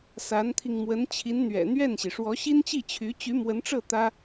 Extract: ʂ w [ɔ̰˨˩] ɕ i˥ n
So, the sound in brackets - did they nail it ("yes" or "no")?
no